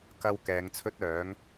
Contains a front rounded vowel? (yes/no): yes